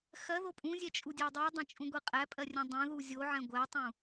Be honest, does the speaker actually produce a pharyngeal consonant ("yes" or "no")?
yes